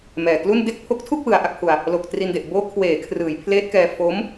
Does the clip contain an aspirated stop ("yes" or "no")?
yes